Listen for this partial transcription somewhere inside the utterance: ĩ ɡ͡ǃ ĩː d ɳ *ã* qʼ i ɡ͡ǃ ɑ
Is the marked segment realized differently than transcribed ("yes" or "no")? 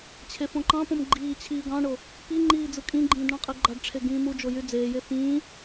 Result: yes